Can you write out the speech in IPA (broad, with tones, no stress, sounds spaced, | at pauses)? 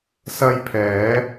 s ɐ˧ j pʰ ɛː˨˧